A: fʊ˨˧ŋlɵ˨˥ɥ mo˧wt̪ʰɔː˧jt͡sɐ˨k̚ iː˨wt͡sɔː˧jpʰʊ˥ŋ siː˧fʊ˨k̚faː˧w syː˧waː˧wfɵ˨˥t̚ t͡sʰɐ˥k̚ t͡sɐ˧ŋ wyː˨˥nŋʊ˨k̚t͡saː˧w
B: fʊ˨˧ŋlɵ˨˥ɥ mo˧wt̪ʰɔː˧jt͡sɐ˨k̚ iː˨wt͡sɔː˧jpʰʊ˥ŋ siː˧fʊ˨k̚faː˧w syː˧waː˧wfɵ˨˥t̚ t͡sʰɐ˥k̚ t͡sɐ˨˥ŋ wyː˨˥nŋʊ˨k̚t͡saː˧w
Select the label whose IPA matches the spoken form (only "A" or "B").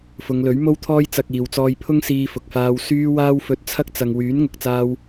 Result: A